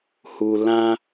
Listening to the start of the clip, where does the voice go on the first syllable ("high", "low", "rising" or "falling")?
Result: low